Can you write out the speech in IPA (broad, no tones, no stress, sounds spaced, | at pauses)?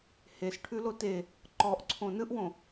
h e s ʈʰ ʉ l o t e | ǃ ɔ ʔ ǀʰ õ n ɯ ʔ w õ